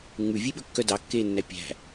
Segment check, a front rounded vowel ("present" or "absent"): present